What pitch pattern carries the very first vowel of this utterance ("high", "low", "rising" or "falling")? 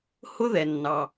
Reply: high